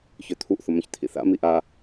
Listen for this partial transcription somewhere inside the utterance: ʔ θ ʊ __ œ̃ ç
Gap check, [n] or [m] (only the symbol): m